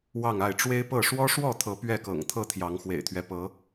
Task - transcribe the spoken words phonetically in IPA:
wɑ˥˨ŋa˥˨ɪ̯ ʈ͡ʂwe˦ɪ̯pɤ˥˨ ʂwɔ˦ʂwɔ˥˨t̪ʰɤ˨˦ pɥɛ˥˨kɤ̰˨˩ŋ t̪ʰɤ˥˨ t̪ʰjɑ˨˦ŋxwḛ˨˩ɪ̯t̪ʰɥɛ˦ pɤ˨˦

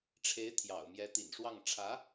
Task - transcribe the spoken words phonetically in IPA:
ʈ͡ʂʰe˧˥ɪ̯t̪ʰjɑ̰˨˩ʊ̯mjɛ˧˥ t̪ḭ˨˩nʂwɑ˥˩ŋ ʈ͡ʂʰä˧˥

